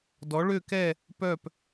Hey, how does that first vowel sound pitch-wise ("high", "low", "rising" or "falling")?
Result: rising